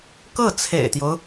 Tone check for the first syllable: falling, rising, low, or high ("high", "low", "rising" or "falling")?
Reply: falling